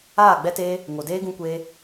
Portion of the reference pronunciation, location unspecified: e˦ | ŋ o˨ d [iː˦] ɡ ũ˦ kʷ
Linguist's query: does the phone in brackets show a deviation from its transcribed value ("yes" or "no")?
yes